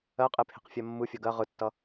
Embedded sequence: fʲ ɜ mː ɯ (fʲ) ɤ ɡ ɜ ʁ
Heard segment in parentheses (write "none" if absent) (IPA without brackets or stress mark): fʲ